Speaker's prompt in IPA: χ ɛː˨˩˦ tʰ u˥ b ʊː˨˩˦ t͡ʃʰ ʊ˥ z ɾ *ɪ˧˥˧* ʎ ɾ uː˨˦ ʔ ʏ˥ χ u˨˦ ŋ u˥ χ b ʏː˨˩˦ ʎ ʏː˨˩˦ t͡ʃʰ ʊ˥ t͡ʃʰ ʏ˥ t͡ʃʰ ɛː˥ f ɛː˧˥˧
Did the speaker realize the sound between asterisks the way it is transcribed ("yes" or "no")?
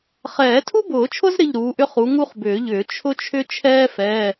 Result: yes